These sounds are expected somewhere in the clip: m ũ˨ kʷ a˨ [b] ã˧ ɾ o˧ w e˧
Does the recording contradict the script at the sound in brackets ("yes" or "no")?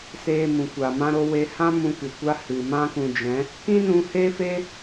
yes